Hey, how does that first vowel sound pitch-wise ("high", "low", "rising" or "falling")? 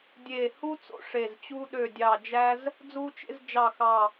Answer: low